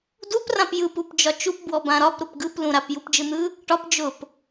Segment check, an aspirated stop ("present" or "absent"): absent